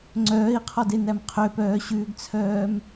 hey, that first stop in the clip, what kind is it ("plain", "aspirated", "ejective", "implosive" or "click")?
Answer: click